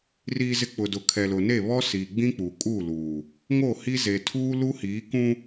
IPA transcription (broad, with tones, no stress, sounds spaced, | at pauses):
r iː˨ z ɪ˨ k͡p ʊ˨ d ʊ˨ kʰ ɛ˨ l ʊ˨ n e˦˨ β ɔ˦ s iː˨ ɡ͡b ĩ˦ k͡p u˨ kʼ u˦˨ l uː˨ | ŋ o˦˨ h i˦ z e˨ tʰ uː˦ l u˦ h iː˨˦ k ũ˦